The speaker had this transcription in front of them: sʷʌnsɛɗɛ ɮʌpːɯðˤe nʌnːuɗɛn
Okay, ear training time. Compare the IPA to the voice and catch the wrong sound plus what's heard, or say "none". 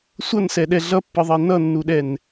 none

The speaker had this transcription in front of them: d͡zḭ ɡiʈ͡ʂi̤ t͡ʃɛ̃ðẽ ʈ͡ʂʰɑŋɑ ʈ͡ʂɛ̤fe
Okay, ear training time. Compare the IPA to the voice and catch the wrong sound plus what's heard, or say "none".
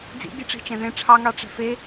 none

